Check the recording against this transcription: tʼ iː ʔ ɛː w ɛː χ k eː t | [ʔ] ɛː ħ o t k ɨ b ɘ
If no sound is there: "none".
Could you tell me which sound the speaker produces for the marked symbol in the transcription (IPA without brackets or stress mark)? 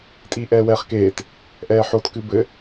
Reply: ʔ